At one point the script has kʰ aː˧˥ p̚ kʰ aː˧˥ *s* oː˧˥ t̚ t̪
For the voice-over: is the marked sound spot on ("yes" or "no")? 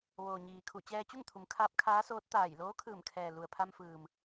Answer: yes